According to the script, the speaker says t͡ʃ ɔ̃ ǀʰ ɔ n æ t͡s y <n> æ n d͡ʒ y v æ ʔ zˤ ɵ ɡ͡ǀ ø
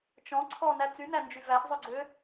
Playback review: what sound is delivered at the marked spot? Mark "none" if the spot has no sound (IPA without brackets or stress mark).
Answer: n